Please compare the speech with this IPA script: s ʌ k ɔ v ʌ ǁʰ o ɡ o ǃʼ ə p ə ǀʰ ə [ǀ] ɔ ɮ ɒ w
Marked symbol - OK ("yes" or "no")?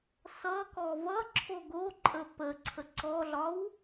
yes